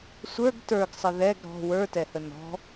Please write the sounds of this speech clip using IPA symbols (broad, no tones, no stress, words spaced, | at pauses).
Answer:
sʷə˞ɡ tə˞ɡsˤə ðɛɡ ɾɔ̤ wə˞tɛhə nɔ̤